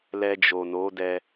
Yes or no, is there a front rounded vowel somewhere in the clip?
no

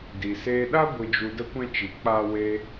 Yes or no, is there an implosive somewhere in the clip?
yes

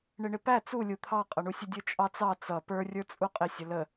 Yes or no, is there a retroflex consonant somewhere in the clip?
yes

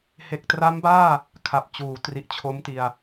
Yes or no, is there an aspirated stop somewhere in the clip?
yes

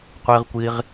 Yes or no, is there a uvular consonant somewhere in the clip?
yes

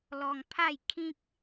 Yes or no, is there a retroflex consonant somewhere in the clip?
no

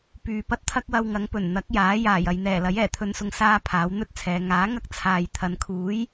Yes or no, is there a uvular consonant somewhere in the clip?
no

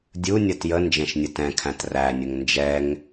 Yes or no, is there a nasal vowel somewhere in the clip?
yes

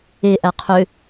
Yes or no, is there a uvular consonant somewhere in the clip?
yes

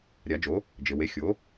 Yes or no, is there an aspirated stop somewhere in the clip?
no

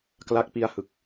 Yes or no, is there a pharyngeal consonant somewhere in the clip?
no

